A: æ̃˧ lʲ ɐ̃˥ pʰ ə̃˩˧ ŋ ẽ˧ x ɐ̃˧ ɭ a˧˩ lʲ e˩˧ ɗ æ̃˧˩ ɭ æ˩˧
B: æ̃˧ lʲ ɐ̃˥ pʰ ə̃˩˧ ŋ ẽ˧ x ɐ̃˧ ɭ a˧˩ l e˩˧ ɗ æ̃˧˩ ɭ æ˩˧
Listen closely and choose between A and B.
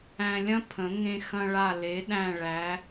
B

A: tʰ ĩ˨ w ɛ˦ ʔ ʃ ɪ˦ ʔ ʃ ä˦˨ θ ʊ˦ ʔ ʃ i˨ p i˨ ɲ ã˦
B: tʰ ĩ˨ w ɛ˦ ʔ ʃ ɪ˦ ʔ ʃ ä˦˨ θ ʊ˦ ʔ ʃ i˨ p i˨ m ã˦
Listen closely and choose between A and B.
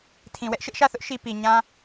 A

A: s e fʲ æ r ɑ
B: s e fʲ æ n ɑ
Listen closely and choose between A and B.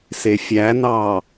B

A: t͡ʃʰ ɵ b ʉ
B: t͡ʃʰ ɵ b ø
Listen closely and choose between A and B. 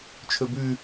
A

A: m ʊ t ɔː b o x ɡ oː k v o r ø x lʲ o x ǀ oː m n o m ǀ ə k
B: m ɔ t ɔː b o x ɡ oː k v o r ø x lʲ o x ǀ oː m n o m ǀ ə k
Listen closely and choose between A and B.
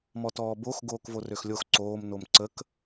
B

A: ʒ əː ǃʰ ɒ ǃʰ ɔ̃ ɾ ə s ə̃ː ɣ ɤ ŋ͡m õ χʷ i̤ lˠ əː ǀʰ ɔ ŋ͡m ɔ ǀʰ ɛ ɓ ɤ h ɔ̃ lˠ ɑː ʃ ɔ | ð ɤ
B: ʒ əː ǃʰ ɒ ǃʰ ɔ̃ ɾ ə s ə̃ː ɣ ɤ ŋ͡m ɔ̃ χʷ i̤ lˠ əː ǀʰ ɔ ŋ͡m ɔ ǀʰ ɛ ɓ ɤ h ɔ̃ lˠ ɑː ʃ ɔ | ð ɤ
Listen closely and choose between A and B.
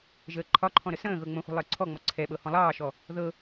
A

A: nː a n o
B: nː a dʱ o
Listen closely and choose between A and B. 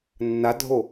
B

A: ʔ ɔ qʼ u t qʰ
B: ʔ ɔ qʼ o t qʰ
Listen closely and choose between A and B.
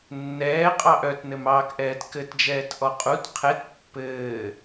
A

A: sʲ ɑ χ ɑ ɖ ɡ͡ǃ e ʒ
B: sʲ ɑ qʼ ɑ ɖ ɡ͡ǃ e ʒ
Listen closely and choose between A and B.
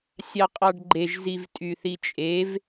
B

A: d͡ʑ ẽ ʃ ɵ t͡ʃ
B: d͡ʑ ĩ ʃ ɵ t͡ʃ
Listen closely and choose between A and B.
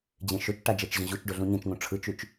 A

